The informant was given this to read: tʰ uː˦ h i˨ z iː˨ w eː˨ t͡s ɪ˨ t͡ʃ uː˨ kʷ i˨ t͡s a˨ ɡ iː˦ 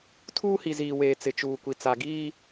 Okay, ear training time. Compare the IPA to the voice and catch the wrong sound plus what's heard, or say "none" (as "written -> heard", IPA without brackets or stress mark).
none